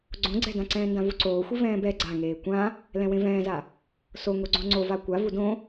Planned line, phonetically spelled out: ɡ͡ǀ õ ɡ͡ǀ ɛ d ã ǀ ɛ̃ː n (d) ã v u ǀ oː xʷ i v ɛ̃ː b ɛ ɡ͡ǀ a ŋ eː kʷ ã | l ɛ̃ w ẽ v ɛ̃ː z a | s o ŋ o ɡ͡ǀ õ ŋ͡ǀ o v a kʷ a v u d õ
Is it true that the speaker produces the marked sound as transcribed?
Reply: yes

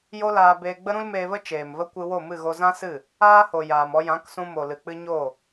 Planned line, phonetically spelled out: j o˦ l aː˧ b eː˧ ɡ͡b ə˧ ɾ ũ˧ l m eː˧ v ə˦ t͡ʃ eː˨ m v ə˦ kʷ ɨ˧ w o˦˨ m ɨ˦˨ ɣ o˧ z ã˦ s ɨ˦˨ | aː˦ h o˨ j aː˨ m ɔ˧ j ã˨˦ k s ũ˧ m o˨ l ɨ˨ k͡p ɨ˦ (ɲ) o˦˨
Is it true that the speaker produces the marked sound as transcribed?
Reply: yes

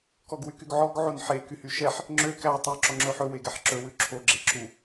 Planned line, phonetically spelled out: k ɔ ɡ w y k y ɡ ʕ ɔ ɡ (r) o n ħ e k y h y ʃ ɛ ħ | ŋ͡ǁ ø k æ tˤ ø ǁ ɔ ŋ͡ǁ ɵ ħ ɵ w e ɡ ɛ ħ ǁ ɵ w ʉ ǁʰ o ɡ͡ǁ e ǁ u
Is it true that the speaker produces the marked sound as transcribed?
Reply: no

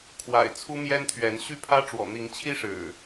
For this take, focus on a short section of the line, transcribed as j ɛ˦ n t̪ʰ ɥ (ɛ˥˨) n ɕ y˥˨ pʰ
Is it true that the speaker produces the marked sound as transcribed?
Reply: no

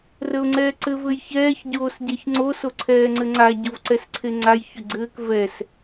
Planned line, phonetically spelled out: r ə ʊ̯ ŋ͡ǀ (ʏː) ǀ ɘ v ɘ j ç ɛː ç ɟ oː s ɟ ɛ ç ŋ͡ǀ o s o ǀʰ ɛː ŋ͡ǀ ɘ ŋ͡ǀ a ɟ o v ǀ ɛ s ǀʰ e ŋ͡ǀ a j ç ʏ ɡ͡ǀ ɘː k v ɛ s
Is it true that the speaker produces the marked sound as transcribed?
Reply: no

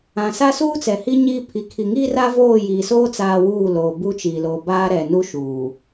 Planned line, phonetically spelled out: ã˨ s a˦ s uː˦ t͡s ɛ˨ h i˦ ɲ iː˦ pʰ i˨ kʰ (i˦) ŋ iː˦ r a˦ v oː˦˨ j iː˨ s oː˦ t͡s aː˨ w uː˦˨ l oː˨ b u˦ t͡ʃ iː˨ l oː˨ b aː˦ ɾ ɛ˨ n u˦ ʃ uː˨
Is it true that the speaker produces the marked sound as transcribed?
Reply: no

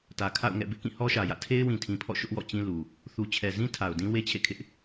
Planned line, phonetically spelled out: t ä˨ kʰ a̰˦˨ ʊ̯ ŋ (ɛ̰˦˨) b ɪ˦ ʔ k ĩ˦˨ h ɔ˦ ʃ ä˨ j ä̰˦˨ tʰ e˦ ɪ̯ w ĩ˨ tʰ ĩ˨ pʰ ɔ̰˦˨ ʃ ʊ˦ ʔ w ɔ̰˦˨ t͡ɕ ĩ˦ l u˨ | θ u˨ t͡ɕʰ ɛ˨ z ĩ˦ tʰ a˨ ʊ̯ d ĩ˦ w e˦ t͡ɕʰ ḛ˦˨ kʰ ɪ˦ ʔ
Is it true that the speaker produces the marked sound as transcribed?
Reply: yes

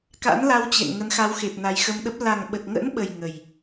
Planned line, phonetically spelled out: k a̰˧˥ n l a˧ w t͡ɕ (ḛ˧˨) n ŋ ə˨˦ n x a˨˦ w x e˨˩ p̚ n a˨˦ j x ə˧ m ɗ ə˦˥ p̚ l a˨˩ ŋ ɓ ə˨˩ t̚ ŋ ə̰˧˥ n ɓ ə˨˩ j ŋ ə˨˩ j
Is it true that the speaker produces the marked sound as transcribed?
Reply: yes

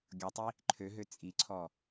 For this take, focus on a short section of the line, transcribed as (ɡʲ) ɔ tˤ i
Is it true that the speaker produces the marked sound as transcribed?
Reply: yes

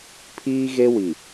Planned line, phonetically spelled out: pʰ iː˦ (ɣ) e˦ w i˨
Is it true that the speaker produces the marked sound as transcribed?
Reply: yes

